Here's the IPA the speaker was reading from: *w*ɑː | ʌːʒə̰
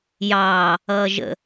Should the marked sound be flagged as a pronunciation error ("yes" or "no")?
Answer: yes